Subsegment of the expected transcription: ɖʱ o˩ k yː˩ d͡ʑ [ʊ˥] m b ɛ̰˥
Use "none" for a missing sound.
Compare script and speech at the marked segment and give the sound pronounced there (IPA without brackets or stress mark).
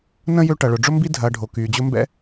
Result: ʊ˦